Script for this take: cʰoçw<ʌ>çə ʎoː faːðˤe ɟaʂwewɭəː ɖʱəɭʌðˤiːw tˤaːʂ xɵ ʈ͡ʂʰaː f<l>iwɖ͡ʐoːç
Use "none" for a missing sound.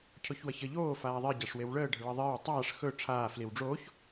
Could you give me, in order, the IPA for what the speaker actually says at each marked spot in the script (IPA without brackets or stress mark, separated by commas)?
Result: ʌ, l